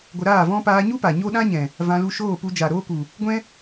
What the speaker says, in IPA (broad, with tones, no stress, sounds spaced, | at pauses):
ɡʷ ə˧ ɾ aː˦˨ v ɔ̃˦ p aː˧ ɲ u˦ p a˨ ɲ o˦ ɗ ã˦ ɲ ɛ̃˨ | v ã˧ l u˧ ʃ oː˦˨ p u˧ d͡ʒ a˨ ɾ oː˦ k u˨ | ɡʷ ɛ̃˦